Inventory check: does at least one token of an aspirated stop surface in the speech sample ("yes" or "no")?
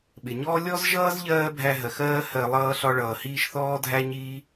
no